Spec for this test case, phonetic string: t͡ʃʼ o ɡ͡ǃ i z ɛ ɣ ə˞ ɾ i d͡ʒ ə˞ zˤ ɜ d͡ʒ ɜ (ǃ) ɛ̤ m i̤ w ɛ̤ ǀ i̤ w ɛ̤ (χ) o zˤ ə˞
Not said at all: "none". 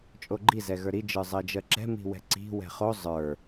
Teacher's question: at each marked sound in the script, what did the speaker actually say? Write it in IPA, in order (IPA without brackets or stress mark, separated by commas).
ǁ, χ